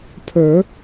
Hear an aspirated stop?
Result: yes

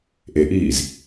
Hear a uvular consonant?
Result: no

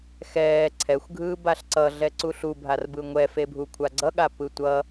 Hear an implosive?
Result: yes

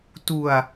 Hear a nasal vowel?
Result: no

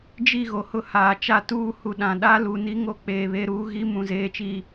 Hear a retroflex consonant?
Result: no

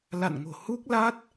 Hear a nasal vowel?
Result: no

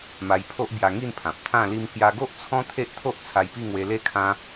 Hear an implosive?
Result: no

